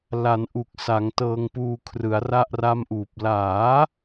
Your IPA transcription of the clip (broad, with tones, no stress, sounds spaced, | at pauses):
l a˩˦ n ʔ u˨˩ k̚ s a˩˦ ŋ t ɤː˧ ŋ p uː˧ kʰ r ɯ˩˦ a̯ r a˥˩ ʔ r a˥˩ m ʔ uː˨˩ p̚ l aː˩˦